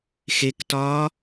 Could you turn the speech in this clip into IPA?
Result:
x e k t ɒː

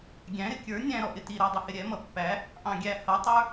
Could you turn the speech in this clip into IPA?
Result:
ɡʲ æ̃ ɾ ɪ kʲ ə˞ nʲ æ̃ ɾ ɔ ʔ ɪ t i ɾ æ dˤ ɪ h ɪ ɾʲ ɛ m ʌ pː æ | ʔ ɑ̃ ɡʲ æ h ʌ tˤ ə˞

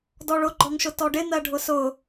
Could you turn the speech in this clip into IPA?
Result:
d ɔ ɭ ʊ ɡ͡ǃ ɔ ŋ ʃ ʊ t ɔ ɖ ɪ n̪ ɜ ɖʱ ʊ s ʊ

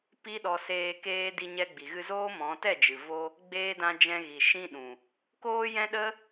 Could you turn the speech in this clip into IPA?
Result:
p i˦ ɗ ɔ˧ s eː˧ k eː˧ d i˧ ɲ ɛ˧ ɡ͡b i˨ ɣ ɨ˧ z oː˦ m ɔ̃˨˦ t ɛ˦˨ d͡ʒ ɨ˨ v o˧ | ɡ͡b eː˧ d ã˧ d͡ʒ ɛ̃˧ ɣ i˨ ʃ ĩ˦ ɗ ũ˨ | k oː˦ j ɛ̃˦ ɗ ə˦

